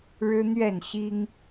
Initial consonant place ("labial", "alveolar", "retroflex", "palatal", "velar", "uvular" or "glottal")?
retroflex